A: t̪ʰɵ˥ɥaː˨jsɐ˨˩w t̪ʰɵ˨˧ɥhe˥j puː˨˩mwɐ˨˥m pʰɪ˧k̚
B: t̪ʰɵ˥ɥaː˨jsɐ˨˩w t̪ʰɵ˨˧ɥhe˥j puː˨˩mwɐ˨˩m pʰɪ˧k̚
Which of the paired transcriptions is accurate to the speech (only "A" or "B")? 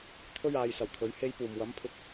A